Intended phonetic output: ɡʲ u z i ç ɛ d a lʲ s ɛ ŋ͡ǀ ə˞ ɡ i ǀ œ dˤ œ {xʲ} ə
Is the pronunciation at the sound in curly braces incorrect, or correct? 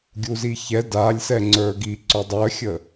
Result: correct